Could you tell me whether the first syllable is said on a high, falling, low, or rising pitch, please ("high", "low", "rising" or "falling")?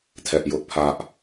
high